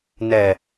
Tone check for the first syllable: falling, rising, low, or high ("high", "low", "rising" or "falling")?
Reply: low